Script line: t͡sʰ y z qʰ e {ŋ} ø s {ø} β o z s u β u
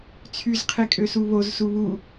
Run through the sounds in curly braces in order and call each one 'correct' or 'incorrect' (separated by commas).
incorrect, incorrect